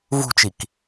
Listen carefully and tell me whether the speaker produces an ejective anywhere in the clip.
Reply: no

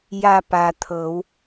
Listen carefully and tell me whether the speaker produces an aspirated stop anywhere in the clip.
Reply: yes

